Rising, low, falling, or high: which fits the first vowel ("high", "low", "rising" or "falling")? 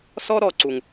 high